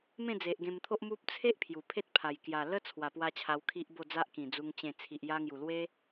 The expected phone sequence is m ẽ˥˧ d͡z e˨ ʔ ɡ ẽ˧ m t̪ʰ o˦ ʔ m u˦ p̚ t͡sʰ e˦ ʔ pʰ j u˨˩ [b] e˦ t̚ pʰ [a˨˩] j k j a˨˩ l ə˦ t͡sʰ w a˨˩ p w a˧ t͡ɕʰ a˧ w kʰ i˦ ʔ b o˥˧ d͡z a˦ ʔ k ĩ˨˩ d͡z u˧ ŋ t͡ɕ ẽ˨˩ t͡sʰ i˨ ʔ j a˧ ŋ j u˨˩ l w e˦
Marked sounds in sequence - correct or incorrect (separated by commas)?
incorrect, correct